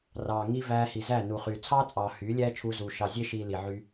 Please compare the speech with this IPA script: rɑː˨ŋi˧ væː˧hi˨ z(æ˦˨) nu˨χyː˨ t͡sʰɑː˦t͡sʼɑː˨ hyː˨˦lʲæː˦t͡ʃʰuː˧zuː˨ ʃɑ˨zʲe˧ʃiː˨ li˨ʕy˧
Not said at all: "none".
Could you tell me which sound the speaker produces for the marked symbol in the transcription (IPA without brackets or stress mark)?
æ˦˨